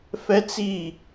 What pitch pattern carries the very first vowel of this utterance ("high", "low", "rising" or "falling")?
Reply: high